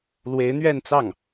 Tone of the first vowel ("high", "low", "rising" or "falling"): rising